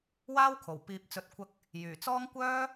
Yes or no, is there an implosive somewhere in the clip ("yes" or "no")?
no